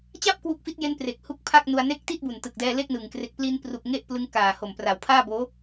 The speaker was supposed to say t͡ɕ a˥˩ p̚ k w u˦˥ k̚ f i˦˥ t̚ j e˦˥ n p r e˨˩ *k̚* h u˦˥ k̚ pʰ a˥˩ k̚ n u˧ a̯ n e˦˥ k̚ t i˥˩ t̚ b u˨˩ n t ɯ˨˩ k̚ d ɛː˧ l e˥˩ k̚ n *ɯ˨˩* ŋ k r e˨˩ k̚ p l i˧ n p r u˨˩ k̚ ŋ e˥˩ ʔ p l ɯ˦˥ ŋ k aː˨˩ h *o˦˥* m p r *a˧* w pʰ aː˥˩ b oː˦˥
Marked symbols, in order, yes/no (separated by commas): yes, yes, no, no